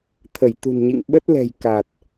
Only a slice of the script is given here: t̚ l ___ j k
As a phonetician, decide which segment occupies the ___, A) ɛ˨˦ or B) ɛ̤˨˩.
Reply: B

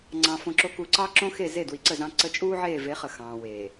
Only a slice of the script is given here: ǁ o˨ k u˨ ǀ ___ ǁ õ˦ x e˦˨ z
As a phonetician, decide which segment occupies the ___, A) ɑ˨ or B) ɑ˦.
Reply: B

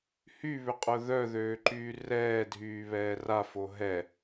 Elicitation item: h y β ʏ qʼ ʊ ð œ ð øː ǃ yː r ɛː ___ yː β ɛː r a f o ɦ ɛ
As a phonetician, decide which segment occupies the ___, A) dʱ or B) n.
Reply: A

